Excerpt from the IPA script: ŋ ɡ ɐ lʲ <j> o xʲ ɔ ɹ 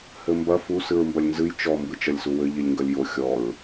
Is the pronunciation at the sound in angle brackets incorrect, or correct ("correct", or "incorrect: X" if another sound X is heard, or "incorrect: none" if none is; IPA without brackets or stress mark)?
correct